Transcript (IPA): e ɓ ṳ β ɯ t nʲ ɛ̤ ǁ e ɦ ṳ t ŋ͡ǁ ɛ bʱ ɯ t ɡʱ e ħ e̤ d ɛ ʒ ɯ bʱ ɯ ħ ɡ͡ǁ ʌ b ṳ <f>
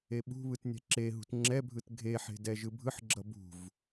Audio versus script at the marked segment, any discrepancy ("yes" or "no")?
yes